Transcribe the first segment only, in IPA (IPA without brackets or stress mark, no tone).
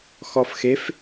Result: x